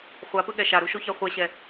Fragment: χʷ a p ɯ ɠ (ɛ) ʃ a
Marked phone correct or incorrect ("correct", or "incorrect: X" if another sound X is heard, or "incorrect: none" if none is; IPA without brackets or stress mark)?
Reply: correct